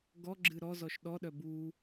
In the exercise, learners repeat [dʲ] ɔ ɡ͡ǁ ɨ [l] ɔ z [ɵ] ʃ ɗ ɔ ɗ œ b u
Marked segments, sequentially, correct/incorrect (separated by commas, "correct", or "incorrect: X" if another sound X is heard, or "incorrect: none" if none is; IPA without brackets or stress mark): incorrect: ɡ, incorrect: ɾ, incorrect: ɔ